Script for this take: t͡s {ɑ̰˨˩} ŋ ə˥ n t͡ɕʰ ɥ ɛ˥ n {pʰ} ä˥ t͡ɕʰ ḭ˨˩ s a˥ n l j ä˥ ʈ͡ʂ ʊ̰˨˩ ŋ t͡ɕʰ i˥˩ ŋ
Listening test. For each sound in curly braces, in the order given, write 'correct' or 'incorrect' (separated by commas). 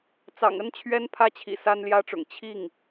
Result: correct, correct